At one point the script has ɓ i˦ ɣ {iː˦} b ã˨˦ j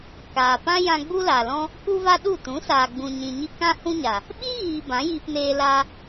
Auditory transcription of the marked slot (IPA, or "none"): iː˨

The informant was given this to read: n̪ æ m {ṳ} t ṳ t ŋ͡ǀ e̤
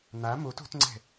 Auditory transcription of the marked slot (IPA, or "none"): u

